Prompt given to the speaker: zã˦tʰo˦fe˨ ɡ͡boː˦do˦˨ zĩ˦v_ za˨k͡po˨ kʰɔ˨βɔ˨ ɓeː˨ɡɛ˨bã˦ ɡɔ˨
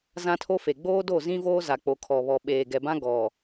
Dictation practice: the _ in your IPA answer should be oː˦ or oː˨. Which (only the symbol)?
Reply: oː˦